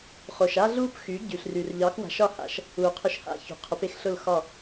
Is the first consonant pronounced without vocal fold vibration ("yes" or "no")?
yes